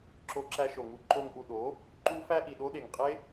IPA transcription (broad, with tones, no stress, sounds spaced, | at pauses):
ǁ o˧ ǁ æ˧ ʃ o˨ ŋ u˧ ǃ o˧ ŋ ʔ u˨ ɗ o˨˦ | ǃ u˦ f æ˦ ʔ i˨ ɗ o˦ ɗ e˨ ŋ qʼ e˦